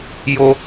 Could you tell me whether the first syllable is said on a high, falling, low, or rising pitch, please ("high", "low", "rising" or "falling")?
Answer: high